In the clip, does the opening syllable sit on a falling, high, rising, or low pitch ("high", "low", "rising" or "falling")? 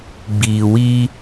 low